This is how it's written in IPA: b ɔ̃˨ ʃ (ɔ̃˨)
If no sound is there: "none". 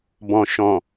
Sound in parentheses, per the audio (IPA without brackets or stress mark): ɔ̃˨